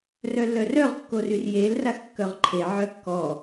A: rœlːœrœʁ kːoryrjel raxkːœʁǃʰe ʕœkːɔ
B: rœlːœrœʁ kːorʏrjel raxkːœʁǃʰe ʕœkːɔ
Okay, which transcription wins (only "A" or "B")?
A